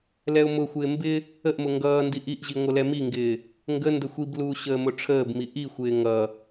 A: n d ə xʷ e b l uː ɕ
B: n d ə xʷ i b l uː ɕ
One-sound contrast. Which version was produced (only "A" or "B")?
B